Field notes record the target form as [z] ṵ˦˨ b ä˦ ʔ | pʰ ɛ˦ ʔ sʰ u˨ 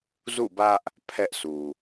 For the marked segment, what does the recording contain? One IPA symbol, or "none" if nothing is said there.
z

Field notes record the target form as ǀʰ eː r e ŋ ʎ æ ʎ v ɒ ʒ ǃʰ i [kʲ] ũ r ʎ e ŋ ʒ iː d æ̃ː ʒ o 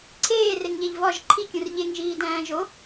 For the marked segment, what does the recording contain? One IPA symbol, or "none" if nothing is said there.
kʲ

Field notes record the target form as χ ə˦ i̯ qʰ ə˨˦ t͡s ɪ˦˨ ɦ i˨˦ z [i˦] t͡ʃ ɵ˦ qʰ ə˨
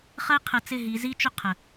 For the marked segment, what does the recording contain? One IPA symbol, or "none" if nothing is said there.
i˦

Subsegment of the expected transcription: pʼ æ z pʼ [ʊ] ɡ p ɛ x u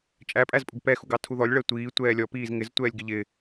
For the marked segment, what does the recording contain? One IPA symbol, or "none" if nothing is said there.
ʊ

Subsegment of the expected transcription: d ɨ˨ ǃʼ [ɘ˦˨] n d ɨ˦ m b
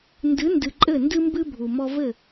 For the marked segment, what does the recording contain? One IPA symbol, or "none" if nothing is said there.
ɘ˦˨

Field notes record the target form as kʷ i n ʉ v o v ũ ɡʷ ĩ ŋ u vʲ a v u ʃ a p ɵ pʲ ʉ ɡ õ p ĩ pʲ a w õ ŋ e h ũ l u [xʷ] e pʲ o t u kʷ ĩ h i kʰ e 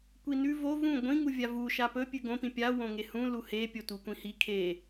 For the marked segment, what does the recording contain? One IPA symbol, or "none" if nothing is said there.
h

